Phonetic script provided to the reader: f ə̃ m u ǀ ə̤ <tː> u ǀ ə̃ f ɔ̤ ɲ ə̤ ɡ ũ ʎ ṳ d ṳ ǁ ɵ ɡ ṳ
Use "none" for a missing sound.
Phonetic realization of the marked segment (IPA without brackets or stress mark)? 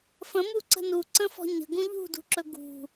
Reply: n